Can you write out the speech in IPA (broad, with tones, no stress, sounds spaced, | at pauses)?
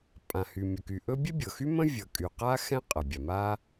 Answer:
pʼ ã˩ h y˩ mʲ ə˩ k y˩ ʔ ɵ˥ bʲ ɛ˥ bʲ ɤ˩ x y˥ m ə̃˥ vʲ ʌ˩ kʼ y˩ q a˥ x ɛ̃˥ qʼ ʌ˩ bʲ a˩ m a˥